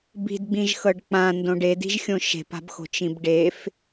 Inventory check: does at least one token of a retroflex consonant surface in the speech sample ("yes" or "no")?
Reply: yes